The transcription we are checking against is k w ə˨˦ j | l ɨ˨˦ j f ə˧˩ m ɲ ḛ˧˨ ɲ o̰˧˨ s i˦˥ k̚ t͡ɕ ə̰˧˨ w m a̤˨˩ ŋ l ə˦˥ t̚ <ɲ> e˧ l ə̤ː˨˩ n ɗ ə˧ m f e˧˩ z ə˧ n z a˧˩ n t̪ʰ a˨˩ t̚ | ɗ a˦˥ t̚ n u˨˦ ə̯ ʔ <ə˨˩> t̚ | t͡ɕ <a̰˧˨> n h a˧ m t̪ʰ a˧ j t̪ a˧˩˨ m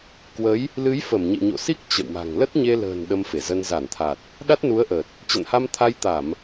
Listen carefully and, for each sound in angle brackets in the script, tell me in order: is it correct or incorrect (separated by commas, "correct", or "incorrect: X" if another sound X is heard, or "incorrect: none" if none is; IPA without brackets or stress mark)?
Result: correct, correct, incorrect: ə̰˧˨